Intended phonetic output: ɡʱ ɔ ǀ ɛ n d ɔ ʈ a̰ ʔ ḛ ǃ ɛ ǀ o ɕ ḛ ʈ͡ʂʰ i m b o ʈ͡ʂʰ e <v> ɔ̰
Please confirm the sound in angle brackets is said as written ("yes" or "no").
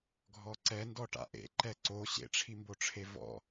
yes